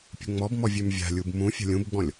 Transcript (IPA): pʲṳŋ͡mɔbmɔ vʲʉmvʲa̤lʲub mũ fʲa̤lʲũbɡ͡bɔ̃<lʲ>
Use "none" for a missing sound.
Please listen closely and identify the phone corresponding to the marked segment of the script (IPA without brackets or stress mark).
lʲ